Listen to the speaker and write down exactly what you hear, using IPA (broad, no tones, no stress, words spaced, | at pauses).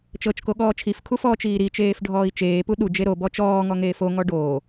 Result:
t͡ʃɤt͡ʃko ɠɔːt͡ʃʰifkʰu fɔːt͡ʃiːɾit͡ʃeːf ɖʱɔːi̯t͡ʃeːpu ɗud͡ʒe ɾobɔ t͡ʃɔːŋɔ ŋeːfoŋɔ ɖoː